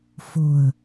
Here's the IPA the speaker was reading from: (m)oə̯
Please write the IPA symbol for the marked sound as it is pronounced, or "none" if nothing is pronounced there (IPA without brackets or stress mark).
f